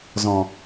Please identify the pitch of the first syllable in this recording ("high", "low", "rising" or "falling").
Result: low